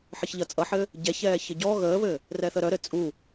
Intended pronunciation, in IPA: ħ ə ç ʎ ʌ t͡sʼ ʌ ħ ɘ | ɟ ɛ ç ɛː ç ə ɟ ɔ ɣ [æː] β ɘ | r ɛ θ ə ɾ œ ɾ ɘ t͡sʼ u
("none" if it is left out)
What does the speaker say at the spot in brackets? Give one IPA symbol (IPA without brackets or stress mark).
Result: əː